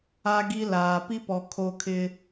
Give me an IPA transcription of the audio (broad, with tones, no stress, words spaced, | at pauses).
a˦ ɡi˦laː˨ pi˦pɔ˨ kʰo˦kʰɪ˦